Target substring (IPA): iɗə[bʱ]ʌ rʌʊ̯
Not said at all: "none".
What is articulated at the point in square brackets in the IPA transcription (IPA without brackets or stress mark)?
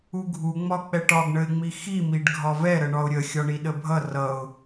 bʱ